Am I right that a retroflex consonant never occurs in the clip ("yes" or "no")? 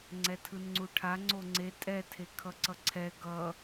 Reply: no